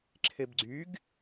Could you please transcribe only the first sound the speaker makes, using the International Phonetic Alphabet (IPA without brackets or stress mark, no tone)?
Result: ǁʰ